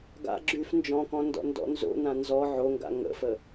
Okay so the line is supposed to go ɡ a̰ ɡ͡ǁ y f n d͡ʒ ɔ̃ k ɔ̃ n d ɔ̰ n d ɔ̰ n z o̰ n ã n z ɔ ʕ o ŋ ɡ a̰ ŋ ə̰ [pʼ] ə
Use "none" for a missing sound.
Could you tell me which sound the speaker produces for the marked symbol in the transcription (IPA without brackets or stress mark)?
f